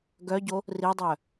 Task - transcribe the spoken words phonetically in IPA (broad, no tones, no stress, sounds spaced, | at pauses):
ɡ œ ɟ o | r i dˤ œ